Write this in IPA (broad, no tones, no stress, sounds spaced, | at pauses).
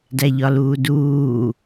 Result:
d æ ʎ ɒ l uː d uː